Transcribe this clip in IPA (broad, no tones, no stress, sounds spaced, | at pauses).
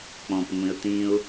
k͡p ɔ̃ p ŋʷ ĩ ə̯ t̪ ĩ ʊ̯